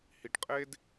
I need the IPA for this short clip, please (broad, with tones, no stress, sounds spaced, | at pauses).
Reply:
h i˧ ʈ qʼ e˥ d